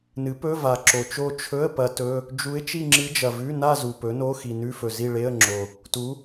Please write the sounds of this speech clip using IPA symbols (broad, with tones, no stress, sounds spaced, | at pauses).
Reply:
n ɨ˩˥ p ɵ˧˥˧ v a˨˩ ǁ o˨˩ t͡ʃ o˥˧ t͡ʃʰ ɵ˧˥˧ ə̯ p ɐ˧˥ t ɵ˧˥˧ | d͡ʒ u˧˥ ɪ̯ t͡ʃ i˥˧ ŋ͡ǁ ɨ˧˥ d͡ʒ ɐ˨˩ v ʉ˧˥˧ n a˥˧ z u˨˩ p ɵ˩˥ n o˧˥˧ x i˨˩ n ʉ˧˥˧ f ɵ˨˩ z i˥˧ ɭ e˧˥˧ ə̯ ŋ͡ǁ o˨˩ | t u˩˥